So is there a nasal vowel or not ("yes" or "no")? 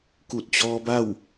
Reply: no